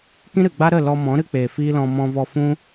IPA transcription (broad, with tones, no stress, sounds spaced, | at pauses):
k ĩ˦ ɾ ɨ˨ ɡ͡b a˦ ɾ ə˦˨ l ɔ˧ m ɔ̃˨˦ ɾ ɨ˦ k͡p eː˨ f iː˦ l ɔ̃˧ m ɔ̃˧ v ɔ˧ f ũ˦